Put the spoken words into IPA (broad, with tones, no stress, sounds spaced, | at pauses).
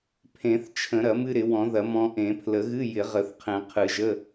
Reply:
pʰ ẽ˨˩˦ θ t͡ʃʰ ə̃˨˩˦ ɾ ɐ˨˩˦ m ɨ˧ ɾ ɪ˨˩˦ w ɔ̃˨˩˦ ð ɐ˨˩˦ m ɔ̃˧ ʔ ẽ˨˩˦ pʰ l ə˨˩˦ ɣ ɨ˧˥˧ j ɪ˨˩˦ ʁ ə˨˩˦ θ qʰ ẽ˨˩˦ qʰ ɨ˨˩˦ ʒ ə˧˥˧